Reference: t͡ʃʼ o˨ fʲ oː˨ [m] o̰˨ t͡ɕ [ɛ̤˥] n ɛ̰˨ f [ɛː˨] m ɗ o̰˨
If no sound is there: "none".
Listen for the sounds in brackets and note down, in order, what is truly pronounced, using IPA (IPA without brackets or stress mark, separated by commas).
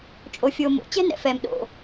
m, ɛ̤˥, ɛː˨